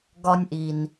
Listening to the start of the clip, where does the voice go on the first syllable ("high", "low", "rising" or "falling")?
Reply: high